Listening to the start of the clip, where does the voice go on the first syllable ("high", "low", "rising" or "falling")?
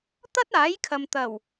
high